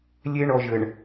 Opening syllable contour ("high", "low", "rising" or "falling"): high